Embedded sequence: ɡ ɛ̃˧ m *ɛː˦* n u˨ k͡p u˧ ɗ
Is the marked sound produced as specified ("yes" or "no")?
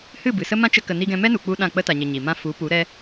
no